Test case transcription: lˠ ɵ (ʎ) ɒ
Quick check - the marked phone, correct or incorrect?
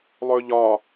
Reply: correct